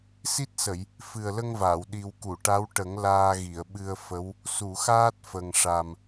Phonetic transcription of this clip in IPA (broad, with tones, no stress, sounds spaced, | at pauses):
s i˦˥ t̚ s ə˨˩˨ j | f ɨ˨˩ ə̯ l ə˧ ŋ v aː˨˩˨ w ɗ i˨˩ w k u˨˩˨ ʈ a˧˥ w ʈ ə˨˩˦ ŋ l aː˧ ɣ i˨˩˨ ə̯ ɓ ɨ˧ ə̯ f ə˧˥ w | s u˨˩˨ x aː˦˥ t̚ f ə˨˩ ŋ ʂ a˨˩ m